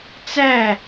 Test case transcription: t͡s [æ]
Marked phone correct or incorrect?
correct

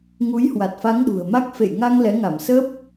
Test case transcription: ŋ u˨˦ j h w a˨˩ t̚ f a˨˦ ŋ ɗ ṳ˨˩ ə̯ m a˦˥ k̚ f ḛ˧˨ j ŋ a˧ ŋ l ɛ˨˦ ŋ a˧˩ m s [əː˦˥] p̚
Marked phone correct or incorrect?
correct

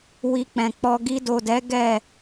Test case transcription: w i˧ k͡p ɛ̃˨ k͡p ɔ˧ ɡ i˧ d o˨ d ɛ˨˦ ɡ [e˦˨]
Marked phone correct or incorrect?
incorrect: ɛ˦˨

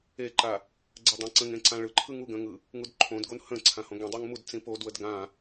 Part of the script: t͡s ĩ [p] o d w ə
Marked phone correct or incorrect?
correct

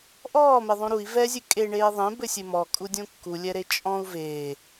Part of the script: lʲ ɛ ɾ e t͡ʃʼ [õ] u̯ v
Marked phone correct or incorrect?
incorrect: ɔ̃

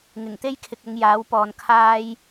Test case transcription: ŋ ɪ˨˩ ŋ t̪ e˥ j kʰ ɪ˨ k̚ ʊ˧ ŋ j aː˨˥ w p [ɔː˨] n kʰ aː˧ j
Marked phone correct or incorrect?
correct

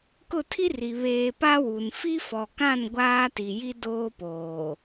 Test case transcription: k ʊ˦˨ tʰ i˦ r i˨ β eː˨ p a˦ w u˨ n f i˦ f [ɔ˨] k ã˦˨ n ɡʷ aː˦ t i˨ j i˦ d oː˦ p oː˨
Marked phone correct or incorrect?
correct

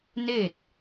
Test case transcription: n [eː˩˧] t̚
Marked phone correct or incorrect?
incorrect: eː˥˨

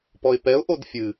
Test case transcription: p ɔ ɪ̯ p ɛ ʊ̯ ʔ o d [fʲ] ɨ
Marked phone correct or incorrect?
correct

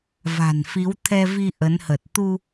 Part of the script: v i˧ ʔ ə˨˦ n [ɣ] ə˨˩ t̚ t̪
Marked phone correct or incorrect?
incorrect: h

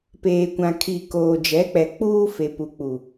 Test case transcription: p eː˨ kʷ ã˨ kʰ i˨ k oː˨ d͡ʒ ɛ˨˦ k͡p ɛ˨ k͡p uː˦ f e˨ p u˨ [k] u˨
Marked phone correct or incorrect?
incorrect: k͡p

